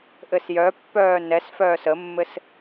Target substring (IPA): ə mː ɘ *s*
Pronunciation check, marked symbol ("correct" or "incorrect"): correct